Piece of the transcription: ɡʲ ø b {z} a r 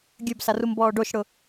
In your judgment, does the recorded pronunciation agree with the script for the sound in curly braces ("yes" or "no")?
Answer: no